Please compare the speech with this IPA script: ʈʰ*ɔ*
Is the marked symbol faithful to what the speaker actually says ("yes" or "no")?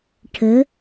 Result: no